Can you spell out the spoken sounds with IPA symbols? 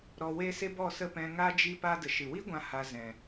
ɾ ɔ˧ w e˦ s e˦ b ɔ˦˨ s ə˦˨ p ɛ̃˧ ŋ a˦ d͡ʒ i˦ p a˦ d ə˨ ʃ ɨ˨ w i˦ ɡʷ ã˦ h a˧ z ɛ̃˨

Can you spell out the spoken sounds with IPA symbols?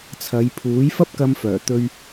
t͡sʰ ɐ˨˧ j pʰ uː˨˥ j f ɐ˥ p̚ k ɐ˧ m f œː˨˩ t̪ ɵ˧ ɥ

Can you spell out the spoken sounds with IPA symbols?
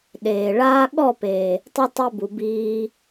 ɗ eː˨ ɭ aː˦ ɠ ɔ˦˨ p eː˨ | tˤ ɨ˧ tˤ e˦ b u˨ b iː˧

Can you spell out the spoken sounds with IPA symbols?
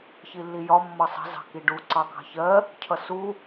ç i lː i j ɒ mː ʌ sˤ ə̤ z ɑ̤ k i ɖ u ǀ ɑ k ɑ̤ ç ɜ | cʰ ʌ s u

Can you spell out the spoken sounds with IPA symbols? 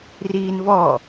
r iː n v ɔ

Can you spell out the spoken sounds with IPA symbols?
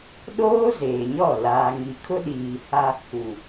ɗ oː˦ z eː˨ ɲ ɔ˦˨ l aː˨ ŋ i˨ kʰ ʊ˦ ɗ iː˨ h a˦ | u˨

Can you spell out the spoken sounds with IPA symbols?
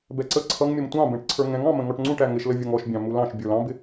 b ɛ ǀ ə ǀʰ ʌ ŋ mʲ ʌ m tʷ ɑ̃ b ɛ̃ ʈ ǀʰ ə˞ ŋ ɛ̃ ŋ ɑ̃ m ə̃ ŋ ɔ ʈ ŋ͡ǀ ũ ʈ æ ŋ ɪ ʃ l ə vʲ ʌ ŋ ɔ ʃ bʲ ɑ̃ m u l ɑ̃ ʃ bʲ ə˞ l ɑ̃ b ɪ

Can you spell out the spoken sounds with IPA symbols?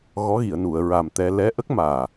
ɣ ɔ˧˥ ɣ i˨˩˨ ə̯ n u˨˩˨ ə̯ ɹ a˨˩ m t̪ ɛ˧ l ɛ˧˥ ʔ ə˦˥ k̚ m aː˨˩

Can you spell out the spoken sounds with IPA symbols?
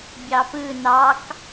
bʲ ɑ p ɯ n ɑ k

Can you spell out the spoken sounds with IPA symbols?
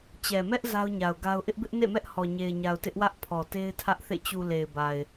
t͡ɕ ɛ˨ m ɛ˦ ʔ z a˦ ʊ̯ ɲ a˨ ʊ̯ ɡ a˦ ʊ̯ ʔ ɪ˦ ʔ b ɪ˦ ʔ n ḛ˦˨ m ɛ˦ ʔ h ɔ˨ ɲ e˨ ɪ̯ ɲ a˨ ʊ̯ t ɪ˦ ʔ w ä˦ ʔ pʰ ɔ˨ t e˦ ɪ̯ tʰ ä˦ ʔ θ ḛ˦˨ t͡ɕ u˨ l e˨ ɪ̯ b a˨ ɪ̯

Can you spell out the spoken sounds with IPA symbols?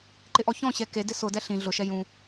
ǃ ɪ ʔ ɔ ç ɔ̃ ɕ ɛ k e d ɪ s ʊ d ɛ ɬ ĩ ɮ ʊ ʃ ɛ j ũ

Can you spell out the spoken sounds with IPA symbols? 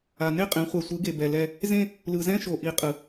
a˨ n e˦ qʼ ẽ˨˦ χʷ ɛ˨ sʷ ɯ˨˦ ɡ e˨ b ɛ˨ l ɛ˦ | z ẽ˦ | l ɯ˨ z ɛ̃˦ ʃ o˨ ʔ i˨˦ qʼ ɯ˨

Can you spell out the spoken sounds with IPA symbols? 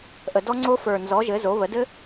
ʔ ə˨˩ d ɔ˦˥ ŋ͡ǀ o˦˥ f ə˞˨˩ n z ɔ˩˥ ʒ ɘ˩˥ z o˩˥ β ə˩˥ d ɘ˦˥

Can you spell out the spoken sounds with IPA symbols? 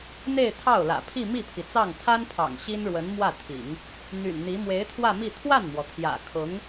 n̪ e˥˧ ɪ̯ t̪ʰ ɑ˥˩ ʊ̯ l ä̰˨˩ pʰ i˥˧ m i˥˩ pʰ i˩ t͡s ɑ˥˩ ŋ t̪ʰ a˥ n pʰ ɑ̰˨˩ ŋ ɕ i˥ n ɻ w ə˧˥ n m w ä˥˩ t̪ʰ ḭ˨˩˦ ŋ | n̪ y̰˨˩ n n̪ i˧˥ m w e˧˥ ɪ̯ t̪ʰ w ä˥˧ m i˥˧ t̪ʰ w a˥˩ n m w ɔ˩ t̪ʰ j ä̰˨˩ kʰ ʊ˧˥ ŋ

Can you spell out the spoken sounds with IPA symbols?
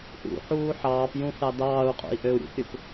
ʔ ṵ ħ uː ħ ɑː p j ũ θ ɑ d ɑː u̯ qʼ ṵ i̯ ʔ ø u̯ ɾʲ ṵ p ɾʲ ɯ p

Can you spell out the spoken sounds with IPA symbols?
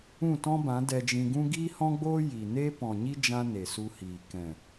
ũ˦˨ t ɔ̃˦ b ã˨˦ d ɛ˧ d͡ʒ ĩ˧ ɡ ũ˦ ɡ iː˦ h ɔ̃˦ ɡ͡b oː˦ j i˨ n e˦ p ɔ̃˨ ɲ i˦ d͡ʒ ã˦ n e˨ s u˧ h iː˨ k ɛ̃˨

